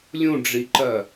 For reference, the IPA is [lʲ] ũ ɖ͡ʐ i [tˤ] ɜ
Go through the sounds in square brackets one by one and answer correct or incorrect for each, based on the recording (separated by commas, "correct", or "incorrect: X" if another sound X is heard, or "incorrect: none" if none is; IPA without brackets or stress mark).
correct, incorrect: ǃ